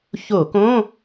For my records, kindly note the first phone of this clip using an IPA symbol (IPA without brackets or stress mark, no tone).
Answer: ç